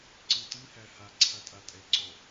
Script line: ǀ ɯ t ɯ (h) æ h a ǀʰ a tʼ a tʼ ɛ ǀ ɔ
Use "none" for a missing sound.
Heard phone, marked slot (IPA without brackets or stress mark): h